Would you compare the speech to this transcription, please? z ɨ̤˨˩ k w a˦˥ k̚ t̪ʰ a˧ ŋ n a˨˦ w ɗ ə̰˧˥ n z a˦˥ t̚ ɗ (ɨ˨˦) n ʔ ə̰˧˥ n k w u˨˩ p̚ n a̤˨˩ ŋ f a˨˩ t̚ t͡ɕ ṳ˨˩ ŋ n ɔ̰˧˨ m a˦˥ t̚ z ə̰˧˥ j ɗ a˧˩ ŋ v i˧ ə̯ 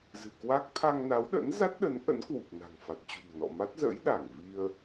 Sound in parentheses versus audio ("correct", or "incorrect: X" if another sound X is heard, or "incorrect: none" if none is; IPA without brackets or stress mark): incorrect: ə˨˦